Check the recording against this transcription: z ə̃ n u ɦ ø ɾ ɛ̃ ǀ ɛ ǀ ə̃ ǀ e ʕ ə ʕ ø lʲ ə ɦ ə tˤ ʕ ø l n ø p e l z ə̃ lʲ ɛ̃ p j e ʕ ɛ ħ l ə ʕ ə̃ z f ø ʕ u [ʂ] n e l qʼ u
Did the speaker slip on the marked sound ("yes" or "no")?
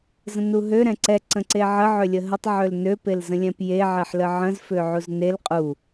yes